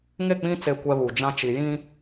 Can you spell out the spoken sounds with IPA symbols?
ŋe˦˨k͡pĩ˦ t͡se˦˨kʷɛ˦βu˨ d͡ʒã˦t͡ʃi˨jĩ˦

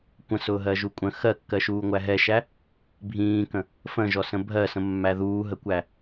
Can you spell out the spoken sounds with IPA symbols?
kʷə̃sʊːɦɜʒu kʷʼə̃ xɜkːɜʃuːŋʷæ ɦɛʃæ | bʱĩːkə̃ | fə̃ʒɔsə̃ bʱɜsə̃mːæ ðuːɦəkʷæ

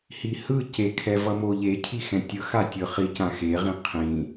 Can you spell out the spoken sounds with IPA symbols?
hihɯ cekʰɛ vʌmoʎe cʰixɛ̃tʲɯxa tʲɯχicã xeʁĩ qʰĩ

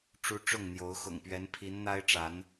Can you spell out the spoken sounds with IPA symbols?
ʈ͡ʂu˦ ʈ͡ʂʊ˥˨ŋn̪jo˨˦ʊ̯ xʊ̰˨˩ŋpɥɛ˨˦npʰi˨˦n n̪a˦ɪ̯ʈ͡ʂa˨˦n

